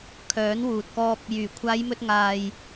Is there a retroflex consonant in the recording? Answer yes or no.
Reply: no